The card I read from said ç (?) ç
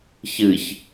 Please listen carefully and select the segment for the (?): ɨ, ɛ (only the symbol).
ɨ